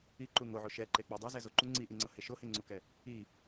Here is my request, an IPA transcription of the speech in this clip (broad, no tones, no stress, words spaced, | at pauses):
iǃu ŋoʕo ʃɛǃek͡pɛ dˤɤzɛ zoǃu ŋ͡ǀiʔiŋ͡ǀɤhe ʃoheŋ͡ǀukɛ | i